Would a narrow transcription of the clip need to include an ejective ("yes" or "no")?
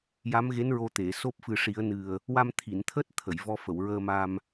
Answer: no